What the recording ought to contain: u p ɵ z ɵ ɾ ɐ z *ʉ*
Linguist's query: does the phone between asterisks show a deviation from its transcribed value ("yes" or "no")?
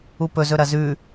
no